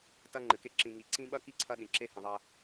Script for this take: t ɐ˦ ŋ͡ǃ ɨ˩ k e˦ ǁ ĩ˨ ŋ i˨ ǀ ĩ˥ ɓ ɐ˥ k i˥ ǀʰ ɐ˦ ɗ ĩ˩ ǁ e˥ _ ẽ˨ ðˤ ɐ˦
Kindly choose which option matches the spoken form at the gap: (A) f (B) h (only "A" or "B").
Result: B